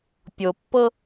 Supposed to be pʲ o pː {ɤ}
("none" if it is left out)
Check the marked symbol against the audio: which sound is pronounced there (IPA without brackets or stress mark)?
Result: ɤ